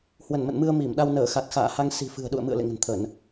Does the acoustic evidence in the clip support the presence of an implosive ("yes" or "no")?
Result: yes